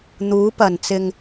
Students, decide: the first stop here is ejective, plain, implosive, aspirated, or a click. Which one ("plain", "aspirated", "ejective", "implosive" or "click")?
plain